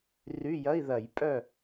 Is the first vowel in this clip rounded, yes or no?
yes